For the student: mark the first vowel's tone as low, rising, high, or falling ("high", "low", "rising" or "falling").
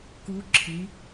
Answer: rising